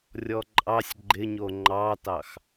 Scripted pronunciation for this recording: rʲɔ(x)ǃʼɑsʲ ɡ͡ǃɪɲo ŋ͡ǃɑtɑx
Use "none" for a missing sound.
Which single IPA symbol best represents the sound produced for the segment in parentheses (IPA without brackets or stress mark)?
none